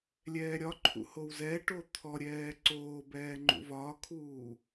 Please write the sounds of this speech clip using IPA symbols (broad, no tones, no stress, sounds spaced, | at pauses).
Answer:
lʲ ɛː ɾʲ ɒ ǃʰ ṵ h o w z ɛ ʈ o t̪ʰ ɔ ɾʲ ɛː ǀ oː b ɛː ŋ͡ǃ ṵ v ɒː kʰ uː